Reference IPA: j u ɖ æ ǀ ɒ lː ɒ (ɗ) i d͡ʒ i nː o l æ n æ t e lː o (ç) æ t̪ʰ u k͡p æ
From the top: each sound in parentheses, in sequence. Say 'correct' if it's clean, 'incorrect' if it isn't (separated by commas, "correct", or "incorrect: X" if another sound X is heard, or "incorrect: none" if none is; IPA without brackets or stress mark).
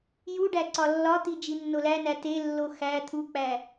incorrect: t̪, incorrect: x